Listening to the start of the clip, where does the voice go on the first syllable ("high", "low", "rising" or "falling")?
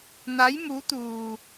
rising